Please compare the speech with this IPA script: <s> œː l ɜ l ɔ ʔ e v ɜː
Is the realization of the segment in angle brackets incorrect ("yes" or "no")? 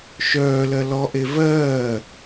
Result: yes